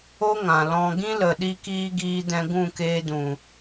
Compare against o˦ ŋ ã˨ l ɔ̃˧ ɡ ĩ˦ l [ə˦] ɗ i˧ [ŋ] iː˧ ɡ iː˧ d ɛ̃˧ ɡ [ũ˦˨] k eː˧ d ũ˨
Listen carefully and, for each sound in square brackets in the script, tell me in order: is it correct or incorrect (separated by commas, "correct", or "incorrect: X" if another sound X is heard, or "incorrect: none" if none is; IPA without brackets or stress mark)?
incorrect: ə˨, incorrect: k, correct